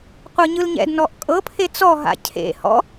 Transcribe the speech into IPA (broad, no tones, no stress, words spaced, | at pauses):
qʷɤɲɯlɲɛ̰d nɔʔkʼɤpʰe t͡sɔɦa̰ cʰḛ hɔ̰